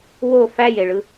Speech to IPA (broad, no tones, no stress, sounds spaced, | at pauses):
w o f æ j e ɭ ɯ